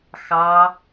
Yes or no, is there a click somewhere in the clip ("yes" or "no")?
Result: no